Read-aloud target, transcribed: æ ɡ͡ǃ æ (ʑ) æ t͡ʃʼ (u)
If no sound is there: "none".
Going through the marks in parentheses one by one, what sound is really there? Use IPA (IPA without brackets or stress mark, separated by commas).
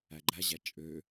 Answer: ʑ, ø